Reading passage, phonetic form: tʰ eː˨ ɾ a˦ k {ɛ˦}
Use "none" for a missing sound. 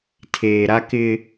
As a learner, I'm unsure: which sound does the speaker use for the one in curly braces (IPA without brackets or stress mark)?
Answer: ɪ˦